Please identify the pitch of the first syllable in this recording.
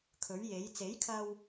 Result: rising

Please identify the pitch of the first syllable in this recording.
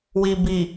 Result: low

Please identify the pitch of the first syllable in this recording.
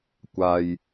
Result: low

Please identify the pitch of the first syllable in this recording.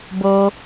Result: low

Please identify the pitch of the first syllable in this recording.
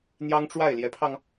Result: high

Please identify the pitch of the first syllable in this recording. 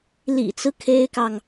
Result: low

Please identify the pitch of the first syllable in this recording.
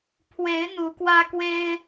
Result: rising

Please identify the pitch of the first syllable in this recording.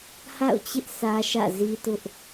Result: falling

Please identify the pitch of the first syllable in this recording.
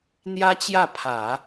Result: high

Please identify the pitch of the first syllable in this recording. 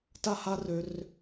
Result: high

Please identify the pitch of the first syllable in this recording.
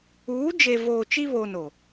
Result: rising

